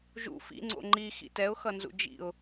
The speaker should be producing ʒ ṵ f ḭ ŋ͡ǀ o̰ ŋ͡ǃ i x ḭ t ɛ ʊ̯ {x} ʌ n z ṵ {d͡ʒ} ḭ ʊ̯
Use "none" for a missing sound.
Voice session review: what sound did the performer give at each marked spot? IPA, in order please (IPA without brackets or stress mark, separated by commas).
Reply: x, d͡ʒ